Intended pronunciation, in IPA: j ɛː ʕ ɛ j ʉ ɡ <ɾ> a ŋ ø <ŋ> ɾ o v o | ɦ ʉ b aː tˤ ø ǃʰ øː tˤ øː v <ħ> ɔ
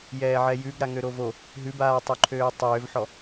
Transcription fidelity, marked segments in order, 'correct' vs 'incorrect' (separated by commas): correct, incorrect, correct